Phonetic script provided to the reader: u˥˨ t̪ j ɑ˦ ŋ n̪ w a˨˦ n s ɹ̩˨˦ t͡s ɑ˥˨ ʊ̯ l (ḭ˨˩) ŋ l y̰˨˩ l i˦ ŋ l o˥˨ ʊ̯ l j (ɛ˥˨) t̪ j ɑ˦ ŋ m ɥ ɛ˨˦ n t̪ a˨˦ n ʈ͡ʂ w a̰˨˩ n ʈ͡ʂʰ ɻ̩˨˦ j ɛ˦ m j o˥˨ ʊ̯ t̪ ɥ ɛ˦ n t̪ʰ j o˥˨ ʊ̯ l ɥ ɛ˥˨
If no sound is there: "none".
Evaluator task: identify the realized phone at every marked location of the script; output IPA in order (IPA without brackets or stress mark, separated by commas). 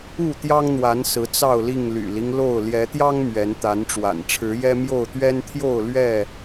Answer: i˥˨, ɛ˨˦